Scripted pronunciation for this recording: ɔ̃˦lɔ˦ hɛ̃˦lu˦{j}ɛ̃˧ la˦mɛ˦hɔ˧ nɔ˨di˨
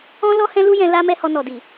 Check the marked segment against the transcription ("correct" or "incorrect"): correct